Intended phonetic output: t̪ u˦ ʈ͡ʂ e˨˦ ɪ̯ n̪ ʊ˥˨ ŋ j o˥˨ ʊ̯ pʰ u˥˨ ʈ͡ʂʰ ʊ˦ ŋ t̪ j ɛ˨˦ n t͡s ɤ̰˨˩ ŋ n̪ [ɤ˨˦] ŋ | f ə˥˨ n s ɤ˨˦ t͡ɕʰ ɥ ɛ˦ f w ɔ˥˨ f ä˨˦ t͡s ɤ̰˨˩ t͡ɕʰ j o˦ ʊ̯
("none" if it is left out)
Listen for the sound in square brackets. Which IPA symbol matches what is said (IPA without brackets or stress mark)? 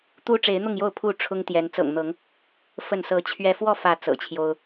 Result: ɤ˨˦